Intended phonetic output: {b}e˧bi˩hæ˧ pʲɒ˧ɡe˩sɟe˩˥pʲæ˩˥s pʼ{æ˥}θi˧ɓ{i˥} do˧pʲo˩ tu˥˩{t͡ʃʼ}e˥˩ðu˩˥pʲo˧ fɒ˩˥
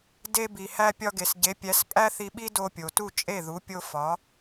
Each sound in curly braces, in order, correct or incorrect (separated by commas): incorrect, correct, correct, correct